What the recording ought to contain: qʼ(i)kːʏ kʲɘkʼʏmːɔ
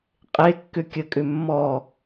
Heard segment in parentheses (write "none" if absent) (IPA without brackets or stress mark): e